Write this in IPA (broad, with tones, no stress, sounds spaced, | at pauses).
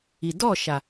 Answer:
i˨ d ɔ˦˨ ʃ a˨